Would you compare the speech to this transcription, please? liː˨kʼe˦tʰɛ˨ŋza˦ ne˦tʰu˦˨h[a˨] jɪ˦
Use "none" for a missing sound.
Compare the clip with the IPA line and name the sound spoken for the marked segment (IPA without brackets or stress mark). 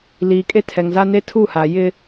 a˨